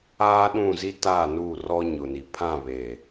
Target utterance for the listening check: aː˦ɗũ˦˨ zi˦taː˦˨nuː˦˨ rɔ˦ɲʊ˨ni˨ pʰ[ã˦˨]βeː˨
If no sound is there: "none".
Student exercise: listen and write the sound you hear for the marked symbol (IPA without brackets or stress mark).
ã˦˨